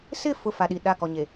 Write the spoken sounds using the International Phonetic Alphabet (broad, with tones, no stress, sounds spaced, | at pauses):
s ɪ˦˨ f ʊ˦˨ f a˨ ɗ i˨ ɗ a˦˨ k ɔ˨ ɲ e˨